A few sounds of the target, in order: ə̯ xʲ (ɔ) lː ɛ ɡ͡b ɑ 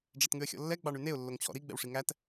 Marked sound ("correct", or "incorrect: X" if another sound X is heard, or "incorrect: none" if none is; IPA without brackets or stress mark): incorrect: ɔ̰